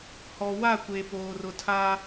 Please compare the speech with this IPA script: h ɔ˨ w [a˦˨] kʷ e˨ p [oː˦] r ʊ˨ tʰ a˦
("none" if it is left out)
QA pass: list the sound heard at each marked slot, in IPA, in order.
a˦˨, oː˨

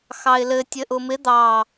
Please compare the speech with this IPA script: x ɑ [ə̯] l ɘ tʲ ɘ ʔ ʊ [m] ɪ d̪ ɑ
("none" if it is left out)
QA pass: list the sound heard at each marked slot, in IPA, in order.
ɪ̯, m

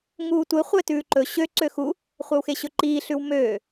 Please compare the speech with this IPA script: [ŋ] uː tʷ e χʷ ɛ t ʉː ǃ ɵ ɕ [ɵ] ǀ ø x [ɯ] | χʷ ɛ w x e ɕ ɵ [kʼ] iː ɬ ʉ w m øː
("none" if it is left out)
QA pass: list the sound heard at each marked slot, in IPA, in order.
ŋ, ø, u, ǃ

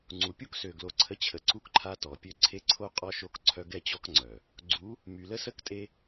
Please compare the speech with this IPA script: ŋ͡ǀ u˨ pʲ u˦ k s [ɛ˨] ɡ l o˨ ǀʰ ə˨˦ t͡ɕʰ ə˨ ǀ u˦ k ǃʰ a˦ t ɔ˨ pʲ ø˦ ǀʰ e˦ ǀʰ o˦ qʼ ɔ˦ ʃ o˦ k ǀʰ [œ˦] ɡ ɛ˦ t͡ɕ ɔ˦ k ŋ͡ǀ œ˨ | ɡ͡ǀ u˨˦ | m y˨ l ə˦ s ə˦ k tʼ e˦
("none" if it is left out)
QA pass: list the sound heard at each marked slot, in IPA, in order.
ø˨, œ˦

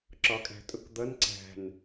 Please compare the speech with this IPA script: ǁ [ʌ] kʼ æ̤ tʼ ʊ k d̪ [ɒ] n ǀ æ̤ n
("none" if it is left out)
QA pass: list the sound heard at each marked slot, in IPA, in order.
ɒ, ʌ

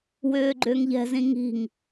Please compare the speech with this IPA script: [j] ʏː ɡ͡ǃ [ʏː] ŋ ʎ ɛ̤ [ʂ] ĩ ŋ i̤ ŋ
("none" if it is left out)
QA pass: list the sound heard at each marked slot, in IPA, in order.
w, ʏː, z

